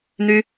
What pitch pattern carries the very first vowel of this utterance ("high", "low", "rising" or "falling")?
high